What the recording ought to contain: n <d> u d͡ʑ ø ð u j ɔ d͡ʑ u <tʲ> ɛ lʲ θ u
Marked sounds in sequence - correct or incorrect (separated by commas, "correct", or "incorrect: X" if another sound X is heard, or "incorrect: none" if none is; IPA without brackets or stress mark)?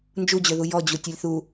incorrect: d͡ʒ, correct